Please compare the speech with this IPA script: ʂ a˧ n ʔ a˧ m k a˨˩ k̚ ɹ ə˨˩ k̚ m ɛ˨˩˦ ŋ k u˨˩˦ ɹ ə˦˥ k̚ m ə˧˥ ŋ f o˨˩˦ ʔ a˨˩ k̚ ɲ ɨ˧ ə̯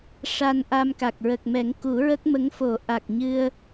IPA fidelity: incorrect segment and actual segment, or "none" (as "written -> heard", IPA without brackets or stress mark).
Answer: none